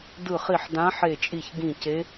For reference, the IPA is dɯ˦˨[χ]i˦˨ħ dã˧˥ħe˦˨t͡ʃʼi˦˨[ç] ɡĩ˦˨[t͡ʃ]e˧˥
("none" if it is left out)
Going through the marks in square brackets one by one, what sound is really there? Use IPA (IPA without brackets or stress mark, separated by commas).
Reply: χ, ç, c